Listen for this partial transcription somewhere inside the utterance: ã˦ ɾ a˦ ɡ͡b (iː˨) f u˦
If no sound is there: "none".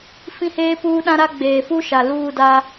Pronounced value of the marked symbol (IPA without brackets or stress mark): eː˨